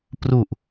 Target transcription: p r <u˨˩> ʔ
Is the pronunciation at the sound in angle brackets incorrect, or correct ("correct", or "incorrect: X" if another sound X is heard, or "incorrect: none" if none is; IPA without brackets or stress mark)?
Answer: correct